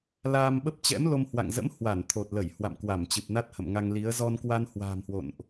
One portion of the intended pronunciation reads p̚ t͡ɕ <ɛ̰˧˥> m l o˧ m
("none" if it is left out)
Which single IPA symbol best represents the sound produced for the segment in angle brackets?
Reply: ɛ̰˧˥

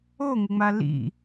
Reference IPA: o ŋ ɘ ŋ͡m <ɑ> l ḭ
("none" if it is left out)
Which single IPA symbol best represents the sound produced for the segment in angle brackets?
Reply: a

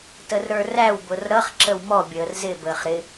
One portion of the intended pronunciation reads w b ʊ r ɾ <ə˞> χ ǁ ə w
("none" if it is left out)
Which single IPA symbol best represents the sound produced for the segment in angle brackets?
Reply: ʌ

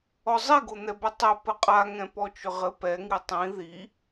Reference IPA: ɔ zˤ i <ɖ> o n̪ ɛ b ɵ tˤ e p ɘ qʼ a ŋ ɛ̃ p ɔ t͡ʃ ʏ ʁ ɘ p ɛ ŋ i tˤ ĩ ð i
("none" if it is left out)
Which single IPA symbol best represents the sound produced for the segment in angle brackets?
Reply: ɡ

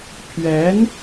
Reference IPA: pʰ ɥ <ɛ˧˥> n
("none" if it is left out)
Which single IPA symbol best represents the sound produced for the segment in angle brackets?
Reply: ɛ˧˥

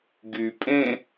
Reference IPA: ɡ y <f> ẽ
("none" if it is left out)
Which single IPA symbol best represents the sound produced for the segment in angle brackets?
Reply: pʼ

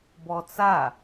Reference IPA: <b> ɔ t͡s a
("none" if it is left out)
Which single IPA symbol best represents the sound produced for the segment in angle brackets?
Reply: b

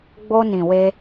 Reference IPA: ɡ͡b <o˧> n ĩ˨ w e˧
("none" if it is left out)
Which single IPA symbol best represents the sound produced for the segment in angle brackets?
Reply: o˧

